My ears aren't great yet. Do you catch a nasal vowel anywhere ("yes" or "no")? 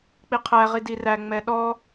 no